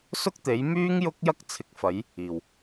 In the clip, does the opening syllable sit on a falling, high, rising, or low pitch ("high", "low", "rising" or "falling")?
high